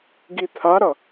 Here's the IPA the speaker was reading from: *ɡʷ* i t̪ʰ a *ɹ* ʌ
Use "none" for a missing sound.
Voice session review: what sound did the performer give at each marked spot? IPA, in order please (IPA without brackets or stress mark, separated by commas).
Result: ɡ, ɾ